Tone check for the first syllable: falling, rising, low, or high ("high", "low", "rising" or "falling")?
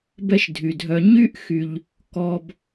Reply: high